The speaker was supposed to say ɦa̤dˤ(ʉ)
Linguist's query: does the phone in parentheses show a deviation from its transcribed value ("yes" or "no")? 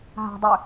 no